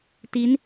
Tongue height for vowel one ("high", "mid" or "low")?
high